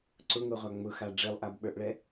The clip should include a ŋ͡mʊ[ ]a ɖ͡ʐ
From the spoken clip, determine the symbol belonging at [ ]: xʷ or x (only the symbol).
x